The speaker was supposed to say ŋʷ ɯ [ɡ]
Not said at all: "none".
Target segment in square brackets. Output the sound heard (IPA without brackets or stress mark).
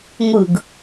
ɡ